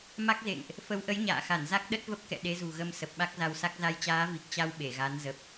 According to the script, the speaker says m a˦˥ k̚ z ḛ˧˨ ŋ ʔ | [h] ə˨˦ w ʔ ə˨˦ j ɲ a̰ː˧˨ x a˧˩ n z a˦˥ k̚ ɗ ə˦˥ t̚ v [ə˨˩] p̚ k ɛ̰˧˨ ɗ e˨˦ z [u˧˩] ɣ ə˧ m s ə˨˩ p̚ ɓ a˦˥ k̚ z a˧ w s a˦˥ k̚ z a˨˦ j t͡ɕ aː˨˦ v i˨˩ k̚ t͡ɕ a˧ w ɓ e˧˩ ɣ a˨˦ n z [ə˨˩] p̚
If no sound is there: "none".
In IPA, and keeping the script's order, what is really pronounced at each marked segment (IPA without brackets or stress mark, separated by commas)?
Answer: f, ə˦˥, ṳ˨˩, ə˨˩